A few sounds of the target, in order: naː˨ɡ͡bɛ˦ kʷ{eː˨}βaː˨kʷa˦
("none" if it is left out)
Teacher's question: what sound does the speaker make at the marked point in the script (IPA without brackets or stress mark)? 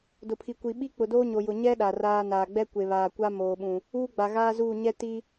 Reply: e˨